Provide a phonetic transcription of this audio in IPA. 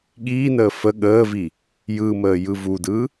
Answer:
ɠ iː n əː f ə ɠ əː v i | j ɯ m əː j ɯ v u d ɯ

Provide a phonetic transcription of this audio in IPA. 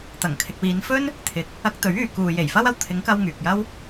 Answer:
t̪ ɐ˨˩ ŋ kʰ ɪ˨ k̚ w iː˨˧ n f ɵ˥ n | t̪ʰ ɪ˨ k̚ | ɐ˧ k̚ t̪ ɵ˨˥ ɥ yː˨ k uː˨ j e˨˩ j f ɐ˥ w ɐ˧ w t̪ʰ ɪ˨˥ ŋ k ɐ˧ w ŋ yː˨ k̚ j ɐ˥ w

